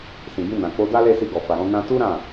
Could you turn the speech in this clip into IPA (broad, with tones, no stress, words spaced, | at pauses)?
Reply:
sĩ˨ɡĩ˧ nã˨k͡po˧da˦le˦˨ si˧ɡɔ˨fa˨ɾɔ̃˨˦ nã˧tu˦ ɾã˦˨